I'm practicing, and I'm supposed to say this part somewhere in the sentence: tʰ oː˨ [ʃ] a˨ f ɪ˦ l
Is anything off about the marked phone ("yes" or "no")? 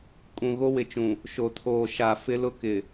no